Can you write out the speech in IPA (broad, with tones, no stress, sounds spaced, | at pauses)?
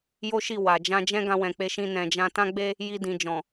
j o˦ ʃ i˦˨ w a˨ d͡ʒ ã˧ d͡ʒ ɛ̃˦ ɡ ã˧ w ɛ̃˨ k͡p e˧ ʃ ĩ˧ n ɛ̃˨ d͡ʒ ã˧ t ã˦ ɡ͡b e˦ | j i˧ d ĩ˨ d͡ʒ ɔ̃˨